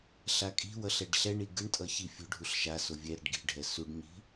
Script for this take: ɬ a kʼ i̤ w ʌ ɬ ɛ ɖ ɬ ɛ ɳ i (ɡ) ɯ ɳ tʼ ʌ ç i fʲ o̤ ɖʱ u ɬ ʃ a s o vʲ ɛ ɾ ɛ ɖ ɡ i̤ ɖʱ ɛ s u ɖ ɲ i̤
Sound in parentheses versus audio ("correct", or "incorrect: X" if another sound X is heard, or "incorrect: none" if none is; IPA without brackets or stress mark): correct